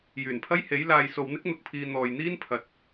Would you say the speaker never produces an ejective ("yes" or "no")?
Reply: yes